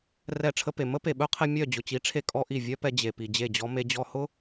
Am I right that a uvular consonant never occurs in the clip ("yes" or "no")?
no